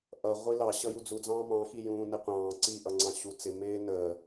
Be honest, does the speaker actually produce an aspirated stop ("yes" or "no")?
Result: no